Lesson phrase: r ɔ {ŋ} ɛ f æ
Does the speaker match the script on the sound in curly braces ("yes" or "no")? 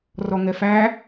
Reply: yes